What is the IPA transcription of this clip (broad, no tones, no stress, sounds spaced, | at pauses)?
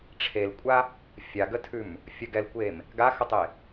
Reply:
ʈ͡ʂʰ e l kʷʼ a | fʲ a ɡ ə tʰ ʉ m | fʲ ə ɡ ɛ l kʷ e m | ɡ a x ə tˤ e